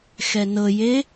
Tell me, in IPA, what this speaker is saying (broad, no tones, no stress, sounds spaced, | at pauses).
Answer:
x ɛ n ɤ j e